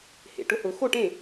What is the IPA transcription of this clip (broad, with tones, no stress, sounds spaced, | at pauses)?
h ḛ˨˩ ʈ ʊ˥˧ h ʊ˨˩˦ x o˥˩ ʈ ẽ˥˩